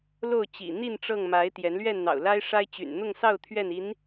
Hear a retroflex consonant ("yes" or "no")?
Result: yes